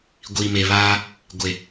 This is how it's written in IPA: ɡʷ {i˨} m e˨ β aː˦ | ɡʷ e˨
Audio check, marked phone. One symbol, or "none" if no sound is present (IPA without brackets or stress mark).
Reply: i˨